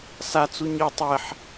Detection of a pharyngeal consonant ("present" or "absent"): present